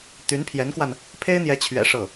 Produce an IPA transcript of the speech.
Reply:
t̪y˧˥npʰjɛ˧˥nkwa˧n | pʰe˥ɪ̯n̪jɛ˧˥t͡ɕʰɥɛ̰˨˩ ʂɤ˥˩

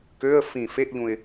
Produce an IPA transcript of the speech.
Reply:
køə̯ fĩ feʔʎũɪ̯

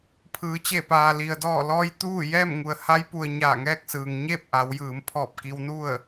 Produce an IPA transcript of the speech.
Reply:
pʰɯː˩˧t͡ɕe˧˩paː˩li˩ə̯ dɔː˧˩lɔː˧j t̪uː˥˨ jɛː˥˨mŋu˩ə̯ ha˧˥jpu˩ə̯ ɲaː˧˩ŋɛː˥˨k̚sɯː˩ŋ ɲeː˥˨p̚ ʔa˩˧wjɯː˩˧mpʰɔː˧˩p̚ ki˧wnu˥˨ə̯

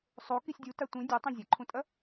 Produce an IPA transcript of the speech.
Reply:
sˤo kisʲdʲuta tʷĩ dʲɨ tˤĩzʲɐǃʰũtʼɐ

